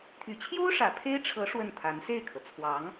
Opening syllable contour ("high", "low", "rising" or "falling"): low